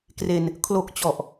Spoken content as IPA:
k r e˧ n | kʰ l o˨˩ k̚ t͡ɕ ɔ˨˩ ʔ

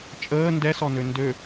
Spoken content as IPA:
t͡ʃʼ əː n d ɛ s ɔ n ø n d ø

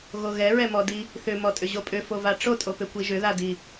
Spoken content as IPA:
ɣ o ɣ ɛ ɹ ɛ m ɔ d i | θ ʏ m ɔ tʼ ʏ ʑ o pʼ ʏ f o v a ʈ͡ʂ o tʼ o p ʏ kʷ i ʒ ʏ ð a d i

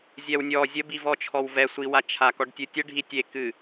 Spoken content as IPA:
zʲ ɛ w nʲ ɔ zʲ ə b i v ɔ t͡ʃʰ ɔ w v ɛ sʷ i w a t͡ʃʰ a k ɔ ɖ tʲ ɨ tʲ ə ɖʱ i tʲ e k ɨ

